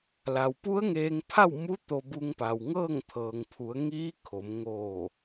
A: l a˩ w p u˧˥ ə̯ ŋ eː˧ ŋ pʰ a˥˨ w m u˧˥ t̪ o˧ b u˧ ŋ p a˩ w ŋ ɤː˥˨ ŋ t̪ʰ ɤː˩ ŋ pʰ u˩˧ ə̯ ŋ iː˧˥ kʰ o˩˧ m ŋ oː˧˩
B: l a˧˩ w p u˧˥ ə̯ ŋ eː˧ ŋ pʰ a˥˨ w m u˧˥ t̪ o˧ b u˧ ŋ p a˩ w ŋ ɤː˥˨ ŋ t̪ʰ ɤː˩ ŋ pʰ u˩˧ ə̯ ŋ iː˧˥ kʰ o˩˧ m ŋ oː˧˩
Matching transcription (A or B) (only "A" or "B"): A